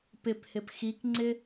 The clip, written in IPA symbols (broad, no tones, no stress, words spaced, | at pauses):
pɪphɪp xikŋ͡ǀɪ